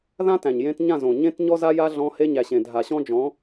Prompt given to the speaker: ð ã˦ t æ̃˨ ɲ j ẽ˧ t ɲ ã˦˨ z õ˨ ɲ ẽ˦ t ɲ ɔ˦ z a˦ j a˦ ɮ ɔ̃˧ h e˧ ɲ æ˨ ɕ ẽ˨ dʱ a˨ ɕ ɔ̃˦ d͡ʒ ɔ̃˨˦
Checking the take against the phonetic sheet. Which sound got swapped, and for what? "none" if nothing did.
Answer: none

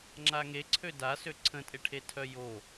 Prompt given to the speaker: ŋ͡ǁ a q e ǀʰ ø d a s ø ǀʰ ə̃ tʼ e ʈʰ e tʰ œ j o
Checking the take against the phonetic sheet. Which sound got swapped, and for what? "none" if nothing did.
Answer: q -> ŋ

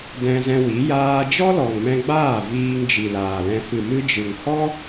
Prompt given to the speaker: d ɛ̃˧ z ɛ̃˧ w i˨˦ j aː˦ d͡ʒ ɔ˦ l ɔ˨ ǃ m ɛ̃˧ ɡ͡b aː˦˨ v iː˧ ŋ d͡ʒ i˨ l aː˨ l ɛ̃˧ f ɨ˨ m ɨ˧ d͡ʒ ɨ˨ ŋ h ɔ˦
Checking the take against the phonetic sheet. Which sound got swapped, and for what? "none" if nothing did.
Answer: ǃ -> ŋ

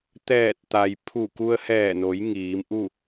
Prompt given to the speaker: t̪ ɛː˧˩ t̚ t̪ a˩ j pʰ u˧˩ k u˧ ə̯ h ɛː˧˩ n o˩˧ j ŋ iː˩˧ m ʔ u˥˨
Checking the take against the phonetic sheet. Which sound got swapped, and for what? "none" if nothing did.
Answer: none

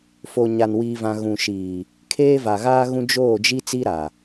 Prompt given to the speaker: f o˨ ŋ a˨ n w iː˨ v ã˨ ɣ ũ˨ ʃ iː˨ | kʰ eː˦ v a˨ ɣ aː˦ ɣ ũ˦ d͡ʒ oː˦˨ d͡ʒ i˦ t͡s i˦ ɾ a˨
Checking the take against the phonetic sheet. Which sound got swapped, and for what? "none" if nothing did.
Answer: ŋ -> ɲ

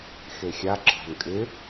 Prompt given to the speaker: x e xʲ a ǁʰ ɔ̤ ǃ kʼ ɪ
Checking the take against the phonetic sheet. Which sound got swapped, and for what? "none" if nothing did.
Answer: ǃ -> n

